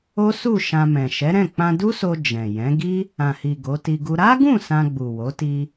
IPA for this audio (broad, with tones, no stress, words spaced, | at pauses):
o˦su˦˨ ʃã˧mɛ̃˨ ʃɛ˨˦ɾɛ̃˦˨ k͡pã˧du˦so˧ d͡ʒɛ̃˨ jɛ̃˨˦ɡi˦ | ã˨hi˨ ɡo˨˦ti˧ɡu˦ ɾa˦ɡũ˦˨ sã˧ɡ͡bu˨wo˨˦ti˧